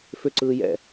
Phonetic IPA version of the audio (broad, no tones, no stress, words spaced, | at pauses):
fʏǀɯːjɛ̰